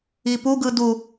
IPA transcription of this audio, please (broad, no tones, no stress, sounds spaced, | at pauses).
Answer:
i p u ɡ ɯ d u